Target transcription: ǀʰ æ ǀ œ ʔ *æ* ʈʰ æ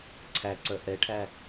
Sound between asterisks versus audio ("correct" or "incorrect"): incorrect